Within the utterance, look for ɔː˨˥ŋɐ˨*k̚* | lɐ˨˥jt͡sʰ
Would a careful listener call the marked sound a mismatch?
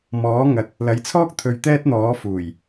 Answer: yes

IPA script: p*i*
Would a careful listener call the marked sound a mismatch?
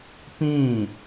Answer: yes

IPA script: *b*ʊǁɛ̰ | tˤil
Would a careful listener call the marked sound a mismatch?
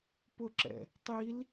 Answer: yes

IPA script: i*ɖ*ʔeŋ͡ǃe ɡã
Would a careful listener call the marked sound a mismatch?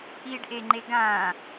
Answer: no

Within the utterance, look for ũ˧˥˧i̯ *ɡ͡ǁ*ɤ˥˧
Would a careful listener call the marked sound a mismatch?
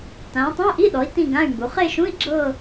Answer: no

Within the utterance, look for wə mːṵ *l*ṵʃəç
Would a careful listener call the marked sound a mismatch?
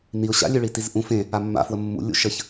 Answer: yes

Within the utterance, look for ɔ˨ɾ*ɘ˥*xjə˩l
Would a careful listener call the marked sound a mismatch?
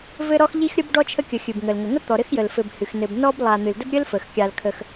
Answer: no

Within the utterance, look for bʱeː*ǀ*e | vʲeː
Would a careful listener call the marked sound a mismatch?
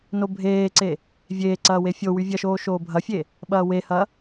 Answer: no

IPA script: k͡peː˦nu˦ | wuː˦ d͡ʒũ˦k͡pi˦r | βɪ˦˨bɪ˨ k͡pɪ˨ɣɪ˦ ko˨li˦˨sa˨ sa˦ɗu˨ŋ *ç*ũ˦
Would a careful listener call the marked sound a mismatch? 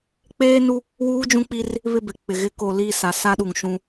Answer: yes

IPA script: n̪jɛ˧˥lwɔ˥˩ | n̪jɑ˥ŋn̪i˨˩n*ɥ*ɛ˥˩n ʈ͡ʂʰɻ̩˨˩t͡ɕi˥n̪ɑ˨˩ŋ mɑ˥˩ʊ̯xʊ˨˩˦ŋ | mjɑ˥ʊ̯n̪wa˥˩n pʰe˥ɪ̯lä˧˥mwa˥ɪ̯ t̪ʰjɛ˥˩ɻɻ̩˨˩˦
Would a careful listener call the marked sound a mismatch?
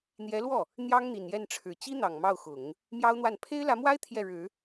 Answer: yes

